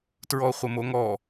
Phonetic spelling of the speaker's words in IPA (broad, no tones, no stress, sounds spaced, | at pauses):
t ɹ ɔ χʷ ə m o ŋ ɔ